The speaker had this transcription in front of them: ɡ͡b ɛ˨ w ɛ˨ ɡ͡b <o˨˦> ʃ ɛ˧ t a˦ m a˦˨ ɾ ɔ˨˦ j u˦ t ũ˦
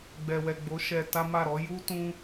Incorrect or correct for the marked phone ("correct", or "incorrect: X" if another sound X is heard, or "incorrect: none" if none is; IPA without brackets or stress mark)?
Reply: correct